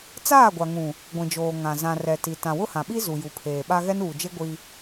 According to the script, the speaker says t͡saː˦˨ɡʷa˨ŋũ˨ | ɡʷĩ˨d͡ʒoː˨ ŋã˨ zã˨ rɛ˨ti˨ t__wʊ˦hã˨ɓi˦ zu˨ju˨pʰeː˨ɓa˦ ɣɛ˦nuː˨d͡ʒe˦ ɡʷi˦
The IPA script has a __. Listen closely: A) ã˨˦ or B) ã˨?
B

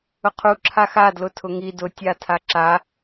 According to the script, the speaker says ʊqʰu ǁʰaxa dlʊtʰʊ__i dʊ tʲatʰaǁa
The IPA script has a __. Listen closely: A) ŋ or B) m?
A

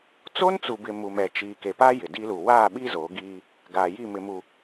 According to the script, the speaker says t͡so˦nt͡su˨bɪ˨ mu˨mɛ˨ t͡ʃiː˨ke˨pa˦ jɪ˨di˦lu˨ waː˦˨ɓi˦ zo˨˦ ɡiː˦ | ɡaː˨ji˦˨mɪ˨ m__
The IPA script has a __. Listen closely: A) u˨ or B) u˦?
A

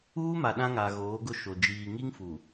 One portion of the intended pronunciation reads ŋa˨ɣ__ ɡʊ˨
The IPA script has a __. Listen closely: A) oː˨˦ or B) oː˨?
A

